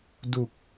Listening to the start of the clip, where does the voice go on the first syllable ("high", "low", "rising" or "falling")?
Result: low